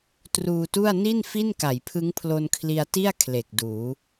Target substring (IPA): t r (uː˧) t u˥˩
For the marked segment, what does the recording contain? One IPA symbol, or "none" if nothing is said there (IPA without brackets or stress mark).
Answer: uː˧